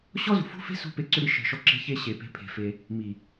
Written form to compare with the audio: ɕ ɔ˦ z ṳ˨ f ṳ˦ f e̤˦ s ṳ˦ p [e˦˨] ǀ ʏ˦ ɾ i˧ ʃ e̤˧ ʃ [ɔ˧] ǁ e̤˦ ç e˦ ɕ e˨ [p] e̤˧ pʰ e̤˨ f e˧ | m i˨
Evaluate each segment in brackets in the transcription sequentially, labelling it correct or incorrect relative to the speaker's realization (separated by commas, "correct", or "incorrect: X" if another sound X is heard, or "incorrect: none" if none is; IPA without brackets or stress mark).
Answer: incorrect: e˧, incorrect: ɔ˦, correct